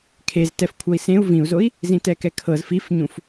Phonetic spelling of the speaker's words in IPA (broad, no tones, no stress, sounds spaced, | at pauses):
kʰ e z t ɛ f kʷʰ ɤ i̯ s ẽ u̯ v ĩ u̯ z o i̯ | z ĩ t ɛ k ɛ kʰ ɤ z f i f ɲ ũ f